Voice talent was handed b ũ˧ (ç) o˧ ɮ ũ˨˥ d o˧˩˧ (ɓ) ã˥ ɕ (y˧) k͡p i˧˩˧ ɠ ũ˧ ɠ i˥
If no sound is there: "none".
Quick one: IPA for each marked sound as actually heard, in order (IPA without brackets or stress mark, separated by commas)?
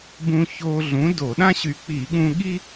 ç, ɗ, y˧